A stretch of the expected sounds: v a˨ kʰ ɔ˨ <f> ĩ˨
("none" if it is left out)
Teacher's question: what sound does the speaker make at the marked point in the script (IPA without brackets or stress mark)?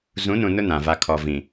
v